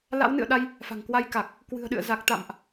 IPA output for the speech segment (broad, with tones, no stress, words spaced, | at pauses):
la̰˧˥wnɨ̰˧˨ə̯ɗa˧j | fa̤˨˩ŋkwa˧jka˨˩k̚ | kwɨ̤˨˩ə̯ɗɨ̰˧˨ə̯ za˨˩k̚t̪a̰˧˨mʔ